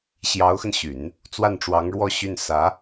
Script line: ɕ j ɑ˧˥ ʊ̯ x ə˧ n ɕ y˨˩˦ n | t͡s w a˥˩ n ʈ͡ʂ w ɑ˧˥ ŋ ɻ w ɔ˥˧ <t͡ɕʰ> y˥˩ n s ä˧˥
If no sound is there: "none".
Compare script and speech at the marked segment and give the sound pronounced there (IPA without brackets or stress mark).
ɕ